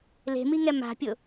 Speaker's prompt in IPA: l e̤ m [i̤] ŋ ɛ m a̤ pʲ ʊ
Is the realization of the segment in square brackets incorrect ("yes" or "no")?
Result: yes